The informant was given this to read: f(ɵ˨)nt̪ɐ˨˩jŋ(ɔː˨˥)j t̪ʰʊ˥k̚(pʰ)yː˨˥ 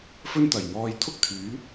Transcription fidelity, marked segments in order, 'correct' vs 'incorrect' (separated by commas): incorrect, incorrect, incorrect